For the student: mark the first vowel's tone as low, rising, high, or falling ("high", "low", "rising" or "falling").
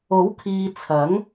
rising